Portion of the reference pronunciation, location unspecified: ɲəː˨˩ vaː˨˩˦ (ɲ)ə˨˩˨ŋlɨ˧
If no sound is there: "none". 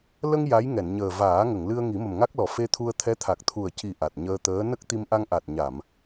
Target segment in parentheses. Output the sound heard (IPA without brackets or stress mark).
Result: ŋ